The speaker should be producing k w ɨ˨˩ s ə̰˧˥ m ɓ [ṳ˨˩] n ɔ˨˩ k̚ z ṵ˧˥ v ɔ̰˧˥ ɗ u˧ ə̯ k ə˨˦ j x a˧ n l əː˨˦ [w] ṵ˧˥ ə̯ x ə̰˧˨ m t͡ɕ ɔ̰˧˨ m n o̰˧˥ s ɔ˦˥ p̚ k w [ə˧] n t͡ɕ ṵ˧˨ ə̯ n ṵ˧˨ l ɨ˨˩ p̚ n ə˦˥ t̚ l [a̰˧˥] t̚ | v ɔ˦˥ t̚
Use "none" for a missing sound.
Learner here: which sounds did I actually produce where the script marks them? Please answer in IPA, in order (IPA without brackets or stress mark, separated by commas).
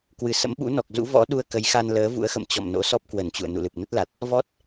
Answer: ṵ˧˥, v, ə˧˩, a˨˩